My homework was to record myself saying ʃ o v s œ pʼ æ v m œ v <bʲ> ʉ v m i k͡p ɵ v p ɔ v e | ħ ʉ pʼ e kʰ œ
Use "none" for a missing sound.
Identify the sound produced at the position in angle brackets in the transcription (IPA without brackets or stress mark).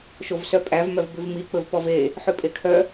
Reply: b